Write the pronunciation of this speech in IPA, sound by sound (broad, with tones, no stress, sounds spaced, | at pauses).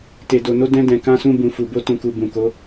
t e˨ d o˨ n o˧ d ɛ̃˧ d ɛ̃˨ k ã˧ s ũ˧ b ũ˨ f u˨ b o˧ t ũ˨ k u˨ b ũ˨ k o˨˦